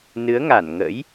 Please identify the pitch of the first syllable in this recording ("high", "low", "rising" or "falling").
rising